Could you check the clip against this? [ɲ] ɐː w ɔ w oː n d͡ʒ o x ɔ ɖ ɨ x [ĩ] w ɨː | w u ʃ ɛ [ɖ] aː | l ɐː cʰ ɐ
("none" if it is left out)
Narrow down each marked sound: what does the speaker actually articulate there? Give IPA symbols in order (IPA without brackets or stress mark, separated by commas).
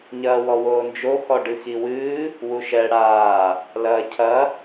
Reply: ɲ, i, ɽ